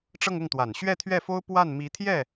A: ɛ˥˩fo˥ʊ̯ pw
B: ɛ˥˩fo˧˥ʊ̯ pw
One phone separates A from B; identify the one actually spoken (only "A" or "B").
A